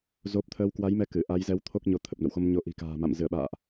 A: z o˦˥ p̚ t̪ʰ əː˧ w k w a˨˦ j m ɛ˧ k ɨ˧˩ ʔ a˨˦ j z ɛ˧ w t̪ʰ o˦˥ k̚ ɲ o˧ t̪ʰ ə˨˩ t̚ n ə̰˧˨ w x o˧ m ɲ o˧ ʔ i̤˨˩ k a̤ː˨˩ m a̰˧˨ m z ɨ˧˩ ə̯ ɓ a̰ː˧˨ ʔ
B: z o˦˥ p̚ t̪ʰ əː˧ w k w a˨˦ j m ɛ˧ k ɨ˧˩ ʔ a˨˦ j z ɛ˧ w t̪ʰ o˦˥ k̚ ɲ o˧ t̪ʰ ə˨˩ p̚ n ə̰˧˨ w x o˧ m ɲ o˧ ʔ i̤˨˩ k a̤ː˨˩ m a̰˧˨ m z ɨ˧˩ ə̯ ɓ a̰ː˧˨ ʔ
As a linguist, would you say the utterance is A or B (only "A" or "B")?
B